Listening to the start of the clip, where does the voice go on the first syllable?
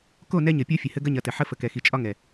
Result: falling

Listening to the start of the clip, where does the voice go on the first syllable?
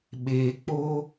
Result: low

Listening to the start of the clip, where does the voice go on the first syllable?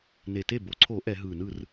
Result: low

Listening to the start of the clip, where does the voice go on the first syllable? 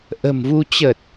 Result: low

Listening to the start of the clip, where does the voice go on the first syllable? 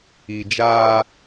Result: low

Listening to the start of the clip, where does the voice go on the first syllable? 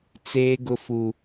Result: high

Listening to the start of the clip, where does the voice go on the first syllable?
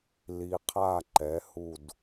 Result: low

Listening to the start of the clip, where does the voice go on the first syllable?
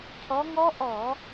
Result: rising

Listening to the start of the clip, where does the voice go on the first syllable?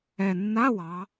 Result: low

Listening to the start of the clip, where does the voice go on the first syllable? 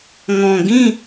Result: low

